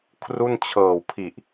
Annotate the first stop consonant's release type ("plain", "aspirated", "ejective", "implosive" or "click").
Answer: aspirated